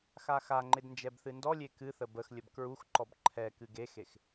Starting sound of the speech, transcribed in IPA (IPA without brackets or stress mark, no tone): x